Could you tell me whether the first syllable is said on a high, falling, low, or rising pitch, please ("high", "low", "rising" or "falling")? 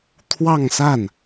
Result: falling